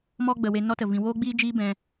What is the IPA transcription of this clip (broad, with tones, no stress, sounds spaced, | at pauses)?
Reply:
m ɔ˦ ɡ͡b ə˨ w e˧ n ɔ˦ t ə˨ v ĩ˨ w oː˦ ɡ͡b iː˦ d͡ʒ iː˦ b ɛ̃˧